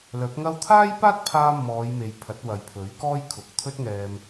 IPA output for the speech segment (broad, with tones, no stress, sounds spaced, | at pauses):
l œː˨˥ p̚ ŋ ɐ˥ w t̪ʰ aː˥ j p aː˥ t̚ pʰ aː˧ m ɔː˨˧ j m e˨ j pʰ ɐ˨˥ t̚ w ɐ˨ j pʰ ɵ˨˥ ɥ k ɔː˥ j kʰ ʊ˨ k̚ t̪ʰ ɵ˥ t̚ ŋ ɛː˧ m